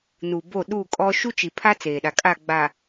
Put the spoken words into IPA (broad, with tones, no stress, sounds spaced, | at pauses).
n u˨ b o˦˨ ɗ u˦˨ kʼ ɔ˦ ʃ u˦ t͡ʃ i˨ pʰ a˦ t͡s eː˨ ɗ a˨ kʼ a˦˨ ɡ͡b a˨